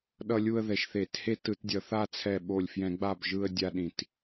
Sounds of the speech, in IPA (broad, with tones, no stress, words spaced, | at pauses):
ɗʌ˥˧lʲu˥˧ə̯ ðɛ˧˩˧ʃθe˧˩˧the˥˧ tɯ˧˩˧tdʲʌ˧˩˧ θa˥˧t͡sʰɛ˧˩ɓo˧˩lʲ fjɛ̃˧˩˧ɡ͡ba˧˩b ʒɯ˥˧ə̯dʲa˥˧ɗĩ˧˩˧t